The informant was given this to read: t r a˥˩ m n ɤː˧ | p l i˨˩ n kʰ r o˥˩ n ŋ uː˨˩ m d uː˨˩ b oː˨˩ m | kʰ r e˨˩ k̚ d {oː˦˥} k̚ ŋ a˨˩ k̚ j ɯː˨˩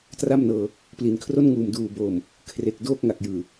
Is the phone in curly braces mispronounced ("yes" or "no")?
no